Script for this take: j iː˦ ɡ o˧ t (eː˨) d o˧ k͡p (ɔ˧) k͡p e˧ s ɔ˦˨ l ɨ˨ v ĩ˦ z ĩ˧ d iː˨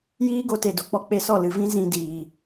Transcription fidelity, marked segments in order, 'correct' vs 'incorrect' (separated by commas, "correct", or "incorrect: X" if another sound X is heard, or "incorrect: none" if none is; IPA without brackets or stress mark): incorrect: e˨, correct